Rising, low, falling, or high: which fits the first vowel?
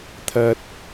low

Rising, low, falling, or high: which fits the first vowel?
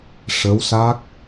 rising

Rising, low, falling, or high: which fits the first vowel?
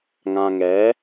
low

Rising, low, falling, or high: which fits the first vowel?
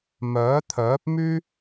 rising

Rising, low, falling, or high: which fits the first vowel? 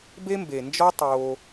high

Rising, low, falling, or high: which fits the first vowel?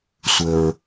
low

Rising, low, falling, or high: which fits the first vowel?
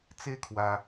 falling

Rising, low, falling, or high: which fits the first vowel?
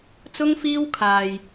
high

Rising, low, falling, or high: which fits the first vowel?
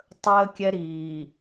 high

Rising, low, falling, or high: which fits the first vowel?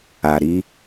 low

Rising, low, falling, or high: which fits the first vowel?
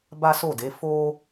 high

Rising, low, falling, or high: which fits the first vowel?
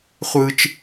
low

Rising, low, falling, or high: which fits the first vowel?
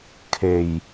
low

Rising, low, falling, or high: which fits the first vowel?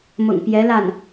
low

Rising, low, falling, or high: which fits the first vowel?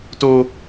high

